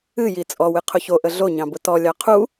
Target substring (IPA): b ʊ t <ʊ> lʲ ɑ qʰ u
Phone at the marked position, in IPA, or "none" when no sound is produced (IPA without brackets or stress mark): ɔ